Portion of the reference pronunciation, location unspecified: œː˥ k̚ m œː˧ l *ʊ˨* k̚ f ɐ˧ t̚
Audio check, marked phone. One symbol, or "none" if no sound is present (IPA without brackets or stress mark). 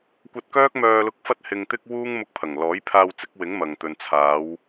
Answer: ʊ˧